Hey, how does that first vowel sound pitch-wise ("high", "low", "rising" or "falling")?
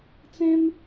high